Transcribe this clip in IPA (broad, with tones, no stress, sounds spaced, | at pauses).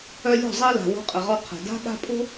œ˧ lʲ o̤˦˨ zˤ i˧ l a̤˨ w o̤˨˦ qʼ ə˨ ʁ ɔ˧ qʰ ə̤˨ d a̤˦ ɠ a̤˦ pʼ o̤˦